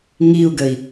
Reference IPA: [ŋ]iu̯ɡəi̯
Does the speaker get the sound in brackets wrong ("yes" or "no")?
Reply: no